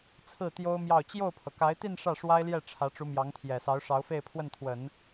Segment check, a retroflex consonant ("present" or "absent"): present